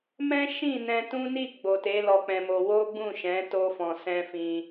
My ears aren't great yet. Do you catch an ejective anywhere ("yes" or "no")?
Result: no